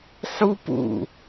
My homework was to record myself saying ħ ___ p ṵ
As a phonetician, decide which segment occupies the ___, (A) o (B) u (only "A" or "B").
B